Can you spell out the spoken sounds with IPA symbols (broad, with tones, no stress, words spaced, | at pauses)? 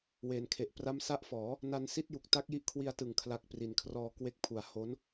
weː˩˦nkʰe˨˩ʔ pra˦˥msa˦˥ʔfɔː˩˦ | na˧nsi˥˩t̚ju˨˩k̚ ta˦˥k̚ji˦˥ʔkʰwi˧a̯tɯ˨˩ŋ kʰla˦˥k̚pri˨˩n kʰrɔː˧kwe˦˥k̚pʰu˨˩a̯ ho˦˥n